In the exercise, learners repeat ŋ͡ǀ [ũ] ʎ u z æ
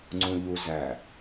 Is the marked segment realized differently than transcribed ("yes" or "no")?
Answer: no